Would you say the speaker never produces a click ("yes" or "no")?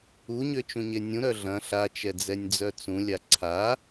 no